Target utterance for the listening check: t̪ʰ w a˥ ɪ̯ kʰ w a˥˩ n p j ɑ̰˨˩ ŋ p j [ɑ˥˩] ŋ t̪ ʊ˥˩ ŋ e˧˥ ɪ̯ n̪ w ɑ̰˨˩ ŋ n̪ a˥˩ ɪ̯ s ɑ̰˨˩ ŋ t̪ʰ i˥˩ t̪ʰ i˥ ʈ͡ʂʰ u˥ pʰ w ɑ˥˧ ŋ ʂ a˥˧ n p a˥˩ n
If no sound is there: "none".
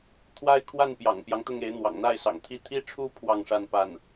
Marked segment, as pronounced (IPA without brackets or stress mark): ɑ˦